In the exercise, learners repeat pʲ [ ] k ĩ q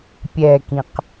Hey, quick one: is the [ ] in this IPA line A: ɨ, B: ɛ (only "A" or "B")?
B